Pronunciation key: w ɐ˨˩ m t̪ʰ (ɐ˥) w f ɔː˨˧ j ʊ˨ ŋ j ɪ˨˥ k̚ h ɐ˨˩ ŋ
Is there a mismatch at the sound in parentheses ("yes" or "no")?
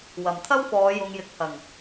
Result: no